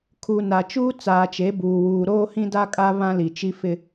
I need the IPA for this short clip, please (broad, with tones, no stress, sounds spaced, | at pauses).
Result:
kʰ u˨ n a˨ t͡ʃ uː˦ t͡s aː˨ t͡ʃ e˨˦ b uː˨ w uː˨ ɾ oː˦ h ĩ˦ d a˦ kʼ a˦ β ã˦ l i˨ t͡ʃ i˦ f ɪ˦